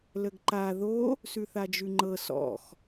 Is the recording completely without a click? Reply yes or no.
no